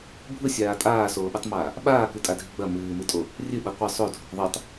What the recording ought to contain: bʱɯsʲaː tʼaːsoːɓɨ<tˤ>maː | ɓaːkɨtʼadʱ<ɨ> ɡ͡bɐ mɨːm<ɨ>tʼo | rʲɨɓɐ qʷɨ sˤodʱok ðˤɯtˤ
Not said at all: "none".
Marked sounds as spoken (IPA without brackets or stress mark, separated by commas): tˤ, i, ɨ